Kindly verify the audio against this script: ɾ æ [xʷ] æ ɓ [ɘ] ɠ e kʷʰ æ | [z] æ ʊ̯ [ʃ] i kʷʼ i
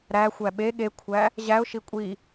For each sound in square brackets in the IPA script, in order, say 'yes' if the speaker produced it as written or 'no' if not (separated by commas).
yes, no, no, yes